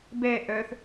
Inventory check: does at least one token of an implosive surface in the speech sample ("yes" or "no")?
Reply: no